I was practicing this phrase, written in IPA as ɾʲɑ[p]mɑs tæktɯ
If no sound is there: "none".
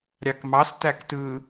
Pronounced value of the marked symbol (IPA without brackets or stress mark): k